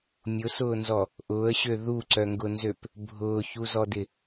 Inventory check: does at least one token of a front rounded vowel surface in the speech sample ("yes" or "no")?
yes